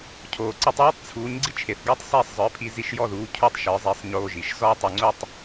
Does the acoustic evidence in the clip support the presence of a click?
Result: yes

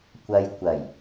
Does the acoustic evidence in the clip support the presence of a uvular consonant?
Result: no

